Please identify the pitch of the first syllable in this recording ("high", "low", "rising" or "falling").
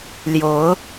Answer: rising